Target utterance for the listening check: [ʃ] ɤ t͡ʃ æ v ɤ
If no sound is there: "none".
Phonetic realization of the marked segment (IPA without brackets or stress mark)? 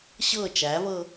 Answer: ɕ